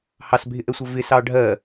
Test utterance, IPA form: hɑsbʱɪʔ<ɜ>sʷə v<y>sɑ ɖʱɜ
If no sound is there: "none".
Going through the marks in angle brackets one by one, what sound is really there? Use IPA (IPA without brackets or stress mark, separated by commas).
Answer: ɛ, ɪ